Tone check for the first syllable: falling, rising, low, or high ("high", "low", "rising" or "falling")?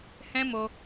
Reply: high